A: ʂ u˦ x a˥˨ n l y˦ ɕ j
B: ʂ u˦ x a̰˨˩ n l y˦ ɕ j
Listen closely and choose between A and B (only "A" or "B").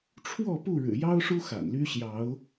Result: B